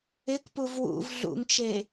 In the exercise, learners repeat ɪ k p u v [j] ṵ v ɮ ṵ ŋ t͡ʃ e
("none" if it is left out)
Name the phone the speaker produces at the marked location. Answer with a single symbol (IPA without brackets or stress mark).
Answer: w